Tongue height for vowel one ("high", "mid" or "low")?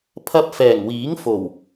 low